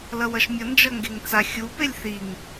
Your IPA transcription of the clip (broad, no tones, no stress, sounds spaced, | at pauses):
l ʌ w ʌ ʃ mʲ ʌ n d͡ʒ ʌ ŋ ɡ e ŋ t͡s a xʲ u p e lʲ θ i ŋ